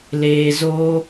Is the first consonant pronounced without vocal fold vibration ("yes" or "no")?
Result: no